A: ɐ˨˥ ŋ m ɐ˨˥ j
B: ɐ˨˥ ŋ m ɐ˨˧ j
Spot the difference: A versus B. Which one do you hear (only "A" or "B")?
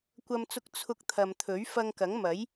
A